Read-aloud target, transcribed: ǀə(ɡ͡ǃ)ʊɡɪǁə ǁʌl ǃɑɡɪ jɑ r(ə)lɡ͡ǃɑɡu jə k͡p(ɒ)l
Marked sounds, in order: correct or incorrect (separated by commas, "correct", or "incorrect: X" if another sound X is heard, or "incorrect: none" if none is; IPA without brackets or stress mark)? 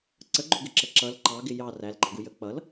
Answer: correct, incorrect: æ, incorrect: ʌ